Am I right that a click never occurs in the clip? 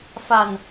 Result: yes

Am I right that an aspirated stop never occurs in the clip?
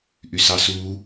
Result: yes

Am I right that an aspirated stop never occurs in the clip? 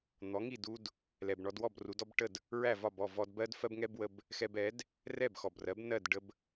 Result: yes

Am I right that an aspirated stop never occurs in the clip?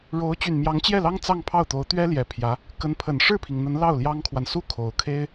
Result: no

